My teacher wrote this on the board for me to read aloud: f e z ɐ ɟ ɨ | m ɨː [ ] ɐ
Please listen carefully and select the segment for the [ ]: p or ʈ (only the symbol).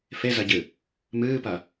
p